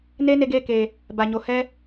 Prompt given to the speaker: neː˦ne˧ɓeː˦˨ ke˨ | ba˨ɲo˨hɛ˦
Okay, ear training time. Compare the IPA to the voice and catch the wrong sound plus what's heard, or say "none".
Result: ɓ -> ɡ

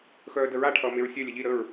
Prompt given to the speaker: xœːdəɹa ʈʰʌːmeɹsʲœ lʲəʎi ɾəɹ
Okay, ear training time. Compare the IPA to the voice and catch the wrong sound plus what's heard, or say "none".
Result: none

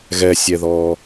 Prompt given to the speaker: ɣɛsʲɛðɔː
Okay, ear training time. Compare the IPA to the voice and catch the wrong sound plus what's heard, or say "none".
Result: none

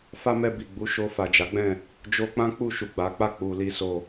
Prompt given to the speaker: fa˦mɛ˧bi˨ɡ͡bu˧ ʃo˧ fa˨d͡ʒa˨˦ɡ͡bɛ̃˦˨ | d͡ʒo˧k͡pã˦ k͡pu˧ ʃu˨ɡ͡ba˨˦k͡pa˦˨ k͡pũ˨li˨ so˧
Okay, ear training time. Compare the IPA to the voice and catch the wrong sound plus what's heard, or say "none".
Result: ũ˨ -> u˨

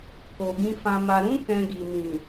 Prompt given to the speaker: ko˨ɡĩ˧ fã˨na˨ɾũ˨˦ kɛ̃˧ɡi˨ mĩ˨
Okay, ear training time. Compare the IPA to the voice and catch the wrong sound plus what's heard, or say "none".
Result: n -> m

